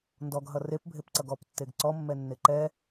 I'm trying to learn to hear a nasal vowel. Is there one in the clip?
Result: no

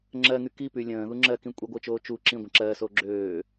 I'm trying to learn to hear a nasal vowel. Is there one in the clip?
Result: yes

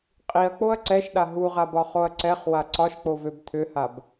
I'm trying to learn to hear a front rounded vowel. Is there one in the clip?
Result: yes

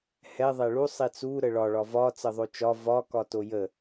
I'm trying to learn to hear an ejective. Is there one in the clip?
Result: no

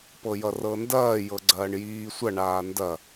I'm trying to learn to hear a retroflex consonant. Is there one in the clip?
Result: yes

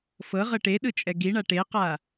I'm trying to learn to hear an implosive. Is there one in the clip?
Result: yes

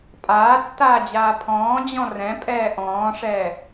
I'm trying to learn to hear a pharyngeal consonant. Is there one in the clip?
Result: no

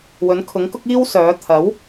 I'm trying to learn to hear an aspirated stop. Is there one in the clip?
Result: yes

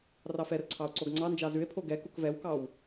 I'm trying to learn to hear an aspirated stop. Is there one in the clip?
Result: yes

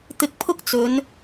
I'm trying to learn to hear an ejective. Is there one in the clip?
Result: no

